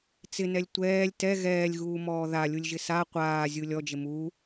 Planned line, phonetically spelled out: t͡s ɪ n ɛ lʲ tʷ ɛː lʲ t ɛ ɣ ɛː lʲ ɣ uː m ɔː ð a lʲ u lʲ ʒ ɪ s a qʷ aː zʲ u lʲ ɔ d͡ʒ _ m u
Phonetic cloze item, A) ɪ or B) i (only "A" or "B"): A